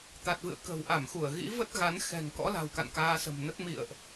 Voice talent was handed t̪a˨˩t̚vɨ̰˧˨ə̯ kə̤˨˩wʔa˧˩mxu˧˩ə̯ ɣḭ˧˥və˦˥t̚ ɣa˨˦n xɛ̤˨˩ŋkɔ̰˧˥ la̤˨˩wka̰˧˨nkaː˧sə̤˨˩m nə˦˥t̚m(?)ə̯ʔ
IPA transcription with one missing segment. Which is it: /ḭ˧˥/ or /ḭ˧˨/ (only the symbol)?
ḭ˧˨